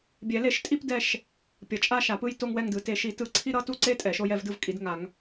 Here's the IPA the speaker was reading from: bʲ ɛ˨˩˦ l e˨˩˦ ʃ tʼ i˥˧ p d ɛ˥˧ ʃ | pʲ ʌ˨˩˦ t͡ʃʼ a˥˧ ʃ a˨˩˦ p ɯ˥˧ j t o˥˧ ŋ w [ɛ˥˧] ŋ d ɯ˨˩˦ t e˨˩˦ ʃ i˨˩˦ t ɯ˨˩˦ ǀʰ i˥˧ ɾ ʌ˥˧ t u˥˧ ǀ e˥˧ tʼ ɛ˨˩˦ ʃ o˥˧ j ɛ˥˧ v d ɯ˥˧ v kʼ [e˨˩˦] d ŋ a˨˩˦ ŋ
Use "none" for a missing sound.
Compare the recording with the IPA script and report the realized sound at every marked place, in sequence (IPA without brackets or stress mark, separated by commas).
ɛ˥˧, i˨˩˦